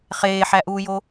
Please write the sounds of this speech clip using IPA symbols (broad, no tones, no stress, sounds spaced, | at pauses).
χ eː ħ æ ʔ uː j o